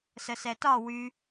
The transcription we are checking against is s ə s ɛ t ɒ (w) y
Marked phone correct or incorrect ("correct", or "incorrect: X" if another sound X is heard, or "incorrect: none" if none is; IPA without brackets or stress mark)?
correct